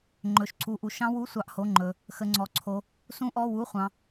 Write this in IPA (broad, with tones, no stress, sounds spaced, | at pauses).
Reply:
ŋ͡ǃ ɵ˧ ʃ ǀ u˧ ʔ u˧ ʃ ɑ̃˦˥ w u˧˥˧ sʷ ɑ˦˥ ʔ h o˧˥˧ ŋ͡ǃ ɵ˧ | x ə˦˥ ŋ͡ǀ ɔ˧˥˧ ǀʰ o˦˥ | s ũ˦˥ ʔ ɔ˧˥˧ w u˧˥˧ χʷ ɑ̃˧